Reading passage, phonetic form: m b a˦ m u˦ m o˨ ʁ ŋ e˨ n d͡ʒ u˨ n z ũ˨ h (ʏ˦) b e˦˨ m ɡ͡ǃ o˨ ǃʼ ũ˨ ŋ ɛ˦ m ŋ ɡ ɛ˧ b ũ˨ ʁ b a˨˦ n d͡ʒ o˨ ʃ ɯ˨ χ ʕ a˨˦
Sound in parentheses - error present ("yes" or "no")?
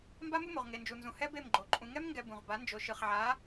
yes